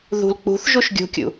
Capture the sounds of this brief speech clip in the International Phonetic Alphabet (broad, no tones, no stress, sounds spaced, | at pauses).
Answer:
ð ṳ l k͡p ṳ θ ʒ u ʃ ɡʲ ṳ kʲ ṵ